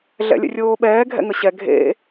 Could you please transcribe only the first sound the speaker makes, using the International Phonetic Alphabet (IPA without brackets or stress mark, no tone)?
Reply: ɮ